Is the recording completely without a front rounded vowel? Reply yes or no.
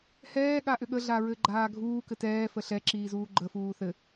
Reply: no